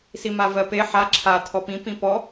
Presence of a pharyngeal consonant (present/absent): present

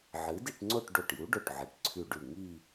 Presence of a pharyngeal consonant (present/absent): present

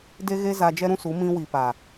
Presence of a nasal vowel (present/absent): present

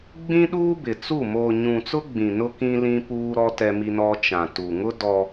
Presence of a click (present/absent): absent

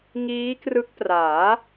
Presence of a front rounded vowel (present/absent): absent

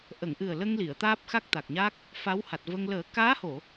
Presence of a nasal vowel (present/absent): absent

